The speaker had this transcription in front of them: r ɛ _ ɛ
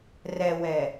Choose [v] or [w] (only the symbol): w